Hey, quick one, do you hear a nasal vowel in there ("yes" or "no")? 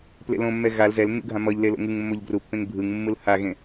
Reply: yes